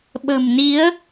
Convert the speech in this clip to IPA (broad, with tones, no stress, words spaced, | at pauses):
ɓə̤˨˩mni˨˦ə̯